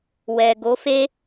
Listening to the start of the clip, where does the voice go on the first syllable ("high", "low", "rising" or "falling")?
low